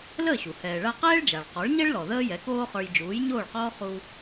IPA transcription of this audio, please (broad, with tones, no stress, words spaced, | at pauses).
ləː˥˩ɕu˩ hɛː˩ɭa˧ qɛː˥ɭd͡ʒa˩ɭ qɔ˩˥ɭɲɛ˥ɭlɔ˩ ðəː˥jɛ˩˥koː˥χə˞˧j d͡ʒuː˩˥jɲoː˥˩ɭqɔː˥ χu˧